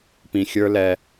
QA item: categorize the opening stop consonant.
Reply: plain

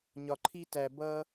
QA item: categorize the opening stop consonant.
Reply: click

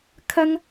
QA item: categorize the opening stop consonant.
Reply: aspirated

